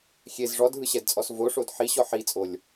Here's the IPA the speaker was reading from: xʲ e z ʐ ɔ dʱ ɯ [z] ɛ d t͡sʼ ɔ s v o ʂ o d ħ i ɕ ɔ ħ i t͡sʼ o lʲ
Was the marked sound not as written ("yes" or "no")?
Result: yes